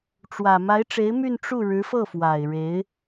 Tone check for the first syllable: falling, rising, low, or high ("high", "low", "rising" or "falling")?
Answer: low